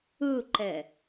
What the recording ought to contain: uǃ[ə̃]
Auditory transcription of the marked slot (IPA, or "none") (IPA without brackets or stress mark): ə